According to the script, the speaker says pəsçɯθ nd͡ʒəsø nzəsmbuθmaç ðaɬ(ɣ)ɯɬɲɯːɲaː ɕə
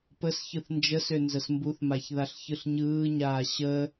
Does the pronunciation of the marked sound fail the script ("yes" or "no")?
yes